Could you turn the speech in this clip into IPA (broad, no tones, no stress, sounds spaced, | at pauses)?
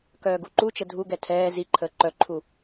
k œː ɡ u ǃ u t͡ʃ ə dʱ u ɡ ɛ tʰ ɛː z i ǃʰ əː ǃ œ ǃʰ u